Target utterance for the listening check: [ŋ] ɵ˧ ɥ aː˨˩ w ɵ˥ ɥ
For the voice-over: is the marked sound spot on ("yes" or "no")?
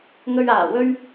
yes